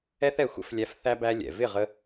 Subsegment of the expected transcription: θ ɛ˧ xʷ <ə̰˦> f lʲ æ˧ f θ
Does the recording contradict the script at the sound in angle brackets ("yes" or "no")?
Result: no